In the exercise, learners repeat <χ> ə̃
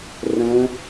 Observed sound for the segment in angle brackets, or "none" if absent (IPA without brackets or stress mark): r